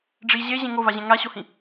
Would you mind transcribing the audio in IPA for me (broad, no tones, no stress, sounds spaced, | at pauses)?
ɖ͡ʐ i ʑ e ʑ ẽ ŋ o v a ʑ ɛ̃ ŋ a ɕ o h ĩ